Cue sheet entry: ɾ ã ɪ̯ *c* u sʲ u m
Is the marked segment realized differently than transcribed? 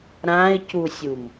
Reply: no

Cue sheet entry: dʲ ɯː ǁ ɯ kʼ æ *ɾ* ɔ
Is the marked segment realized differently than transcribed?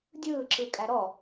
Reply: no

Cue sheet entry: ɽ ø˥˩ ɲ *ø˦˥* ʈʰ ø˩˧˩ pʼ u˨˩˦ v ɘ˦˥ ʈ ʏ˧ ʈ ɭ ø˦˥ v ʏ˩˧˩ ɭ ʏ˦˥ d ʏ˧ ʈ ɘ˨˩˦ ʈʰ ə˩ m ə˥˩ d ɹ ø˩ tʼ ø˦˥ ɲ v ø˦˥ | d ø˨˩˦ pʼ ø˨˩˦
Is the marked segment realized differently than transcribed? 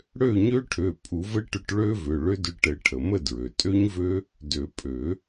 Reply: no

